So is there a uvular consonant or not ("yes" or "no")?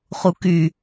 yes